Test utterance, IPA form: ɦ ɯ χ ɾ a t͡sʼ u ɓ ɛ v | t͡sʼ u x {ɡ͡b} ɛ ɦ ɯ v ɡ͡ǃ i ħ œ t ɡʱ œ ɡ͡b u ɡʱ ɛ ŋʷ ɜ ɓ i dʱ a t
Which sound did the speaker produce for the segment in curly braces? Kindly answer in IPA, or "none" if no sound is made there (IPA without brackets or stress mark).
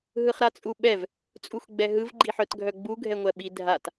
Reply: ɡ͡b